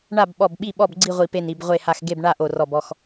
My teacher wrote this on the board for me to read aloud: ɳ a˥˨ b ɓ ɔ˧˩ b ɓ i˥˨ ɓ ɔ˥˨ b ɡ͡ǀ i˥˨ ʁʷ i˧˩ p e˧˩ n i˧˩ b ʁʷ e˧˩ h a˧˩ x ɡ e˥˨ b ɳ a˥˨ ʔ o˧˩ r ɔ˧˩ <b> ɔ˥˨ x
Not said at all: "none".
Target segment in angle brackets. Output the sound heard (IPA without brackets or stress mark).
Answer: b